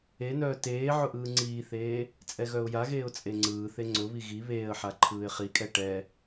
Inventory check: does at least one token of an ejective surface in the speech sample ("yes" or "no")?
yes